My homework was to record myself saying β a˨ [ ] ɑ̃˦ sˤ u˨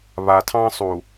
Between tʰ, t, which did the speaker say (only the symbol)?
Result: tʰ